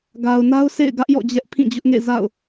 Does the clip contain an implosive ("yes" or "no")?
no